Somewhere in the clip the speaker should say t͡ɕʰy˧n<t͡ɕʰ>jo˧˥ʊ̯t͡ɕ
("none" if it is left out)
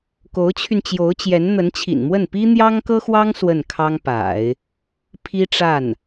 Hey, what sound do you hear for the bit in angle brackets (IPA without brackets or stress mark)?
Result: t͡ɕ